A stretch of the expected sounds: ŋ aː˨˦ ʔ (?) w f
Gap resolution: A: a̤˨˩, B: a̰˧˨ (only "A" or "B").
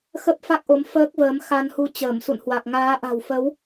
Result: A